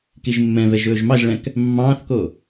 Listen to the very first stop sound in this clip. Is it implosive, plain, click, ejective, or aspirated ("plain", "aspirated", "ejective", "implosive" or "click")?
plain